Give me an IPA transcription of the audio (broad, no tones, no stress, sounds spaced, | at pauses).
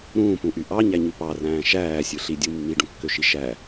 ɾ ũː p ũ ʔ y ʔ ɑ ɲ æ ɲ y p ɑ r æ̃ː ʃ æː sʲ ɯ ɬ i dʲ ɯ mː i ɖ ũ kː ø ʃ i ʃ æ